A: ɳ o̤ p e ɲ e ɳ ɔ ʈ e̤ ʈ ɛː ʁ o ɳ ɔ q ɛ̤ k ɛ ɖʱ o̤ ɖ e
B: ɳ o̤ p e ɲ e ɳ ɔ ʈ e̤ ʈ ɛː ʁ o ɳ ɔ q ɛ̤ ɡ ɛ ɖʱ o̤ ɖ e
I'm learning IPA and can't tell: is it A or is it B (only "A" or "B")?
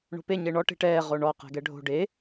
B